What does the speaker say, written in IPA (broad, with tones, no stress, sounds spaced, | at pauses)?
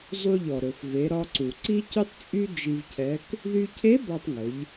zˤ u˧ ʎ ɔ˩ ɾ ɵ˩ f v e˩˧ ɾ ɒ˧ ǀ u˩ ǀ i˥ c y˥ tˤ t͡sʼ y˥ d͡ʒ i˧ v cʰ ɛ˧˥ k | ð y˧ cʰ e˧˥ b ɒ˧ tˤ ŋ ɵ˩˧ ʎ